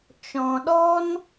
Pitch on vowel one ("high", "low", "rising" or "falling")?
low